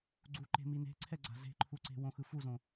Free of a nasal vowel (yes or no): no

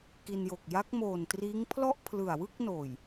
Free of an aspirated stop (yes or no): no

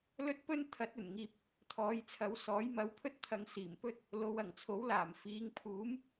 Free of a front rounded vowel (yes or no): yes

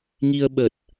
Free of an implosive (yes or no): no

